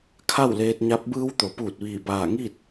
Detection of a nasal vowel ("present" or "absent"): absent